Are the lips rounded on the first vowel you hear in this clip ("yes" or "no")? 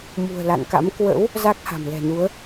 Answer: yes